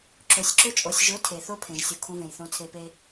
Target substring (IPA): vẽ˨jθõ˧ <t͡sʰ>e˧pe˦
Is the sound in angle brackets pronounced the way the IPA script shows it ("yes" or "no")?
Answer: yes